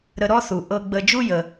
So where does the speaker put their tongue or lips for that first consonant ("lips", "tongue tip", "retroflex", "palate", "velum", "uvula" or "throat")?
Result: tongue tip